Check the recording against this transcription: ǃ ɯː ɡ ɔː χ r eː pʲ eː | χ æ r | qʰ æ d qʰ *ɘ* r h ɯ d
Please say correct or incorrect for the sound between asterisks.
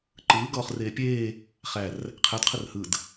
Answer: correct